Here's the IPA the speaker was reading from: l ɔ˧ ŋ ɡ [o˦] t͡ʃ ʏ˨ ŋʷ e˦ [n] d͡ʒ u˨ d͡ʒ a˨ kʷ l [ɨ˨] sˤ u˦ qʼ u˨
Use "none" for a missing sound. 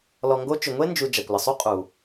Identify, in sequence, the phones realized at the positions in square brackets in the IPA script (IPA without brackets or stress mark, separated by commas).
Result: o˦, n, ə˨